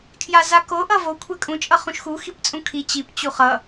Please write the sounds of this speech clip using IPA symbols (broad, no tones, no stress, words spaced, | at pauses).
kʰjazako ʔʌvo kʷʰɛkʼũ t͡ʃʼʌχũʃxu xipt͡sʼũkʰi t͡ɕip t͡ɕuχʌ